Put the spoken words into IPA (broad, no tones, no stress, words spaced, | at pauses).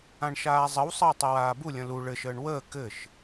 ãɳʃaːzˤəwsˤəː tˤɘwaːbulʲə̃ lu ɭɘʃəːɳ wəː kɘʃ